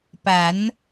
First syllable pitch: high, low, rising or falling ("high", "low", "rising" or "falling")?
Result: rising